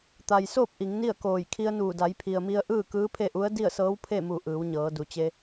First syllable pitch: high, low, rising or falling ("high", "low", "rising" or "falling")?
low